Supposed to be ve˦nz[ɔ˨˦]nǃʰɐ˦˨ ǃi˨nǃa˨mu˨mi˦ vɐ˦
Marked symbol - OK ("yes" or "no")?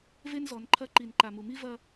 yes